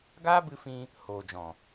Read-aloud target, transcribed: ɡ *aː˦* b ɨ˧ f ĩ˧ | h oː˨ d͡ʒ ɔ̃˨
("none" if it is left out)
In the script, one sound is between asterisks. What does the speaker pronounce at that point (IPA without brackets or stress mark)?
aː˦